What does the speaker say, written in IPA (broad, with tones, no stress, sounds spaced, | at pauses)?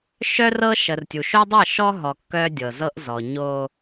ʃ œ˦ r ɤ˦ ʃ ə˨ r tʲ u˨ ʃ o˦ dˤ ɤ˦˨ ʃ ɔ˦ ɦ ɔ˨ kː œ˦ dʲ ɤ˨ z ɤ˦ ʔ z ɔ˨ ɲ o˦